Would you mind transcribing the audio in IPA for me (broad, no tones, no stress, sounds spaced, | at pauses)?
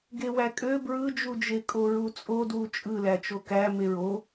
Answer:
ɡ e w æ kʼ ø b ɹ ɯ d͡ʒ u d͡ʒ e kʼ o ɹ u t͡sʼ o d w u t͡ʃʼ ɯ l æ t͡ʃ o k æ m e ɹ o